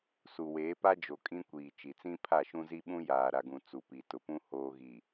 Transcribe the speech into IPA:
su˨weː˨˦pa˦d͡ʒo˨ kʼĩ˦kʷiː˨ t͡ʃi˨t͡sĩ˦pʰa˦˨ʃũ˦ zi˦ɓũ˦ jaː˨ɾa˨ɡũ˨ t͡su˨pi˨tʊ˨pũ˦ hoː˨ɣi˨

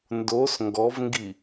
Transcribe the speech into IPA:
ndos ŋɡɔvŋɡi

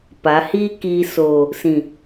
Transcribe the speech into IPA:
pa˨˦hiː˦ kiː˨ soː˨ | sĩ˨

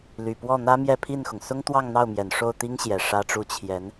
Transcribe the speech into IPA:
ly˨˩pwɔ˥˩ n̪ä˥mjɛ˥˧pʰi˥˩nxʊ˩ŋ sʊ˥ŋt̪wɑ˥˧ŋn̪ɑ˥˩ʊ̯mjɛ˨˩n ʂo˥˩ʊ̯ t̪i˥ŋɕjɛ˨˩ ʂä˥ʈ͡ʂu˥ t͡ɕʰjɛ˧˥n

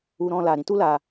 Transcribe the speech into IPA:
u˧ɾɔ̃˧ la˨ɾĩ˧tu˦ la˧

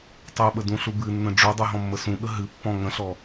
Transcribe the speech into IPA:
tˤuɓədũɬu bɨnːə̃ ɖ͡ʐudˤuɦɔ̃mːə sũɠə ɦɨpːɔ̃ ŋə̃ɬɔ

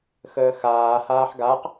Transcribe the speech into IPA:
xəːxaː haːħɡaq

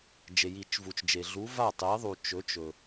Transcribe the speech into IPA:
d͡ʒe˩ji˨˩˦t͡ʃvu˩t͡ʃd͡ʒe˩ ɮu˨˥ va˥˩tˤe˨˥i̯ðˤu˩ t͡ʃɵ˨˥t͡ʃɵ˩

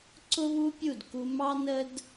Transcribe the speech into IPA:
ǀʊ˦βu˦pʲu˦˨dku˧ mɑ˦nə˦d

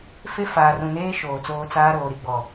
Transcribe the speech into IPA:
fe˦faː˨rũ˨neː˦ ʃoː˨t͡soː˦ t͡saː˦ ɾoː˨ɾi˦ɡ͡bɔ˨

